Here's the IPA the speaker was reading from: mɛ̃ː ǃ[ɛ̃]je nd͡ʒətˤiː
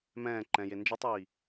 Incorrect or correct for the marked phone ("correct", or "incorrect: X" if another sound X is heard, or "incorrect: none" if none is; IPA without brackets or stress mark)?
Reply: correct